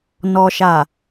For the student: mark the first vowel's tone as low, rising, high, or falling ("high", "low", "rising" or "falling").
low